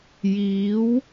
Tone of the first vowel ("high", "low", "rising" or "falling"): rising